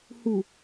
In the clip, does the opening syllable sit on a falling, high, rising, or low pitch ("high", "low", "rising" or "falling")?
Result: low